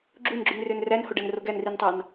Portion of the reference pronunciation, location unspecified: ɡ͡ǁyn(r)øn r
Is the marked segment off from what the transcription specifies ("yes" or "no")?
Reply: no